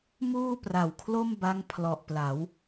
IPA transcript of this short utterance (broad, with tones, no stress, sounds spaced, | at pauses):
m uː˥˩ p r a˨˩ w kʰ l o˥˩ m b a˦˥ ŋ pʰ l ɔ˨˩ ʔ p l a˩˦ w